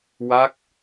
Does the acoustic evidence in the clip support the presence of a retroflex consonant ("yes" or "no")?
no